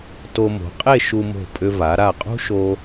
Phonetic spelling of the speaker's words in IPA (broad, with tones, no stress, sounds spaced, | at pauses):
t o˧ m o̤˩˧ qʼ e˥˧ ʃ u˧ m o̤˧˩ pʼ ʏ˧ v a˩˧ ɾ a˧˩ qʼ ṳ˥ ʃ o˧